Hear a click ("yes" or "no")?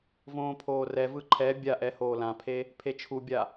yes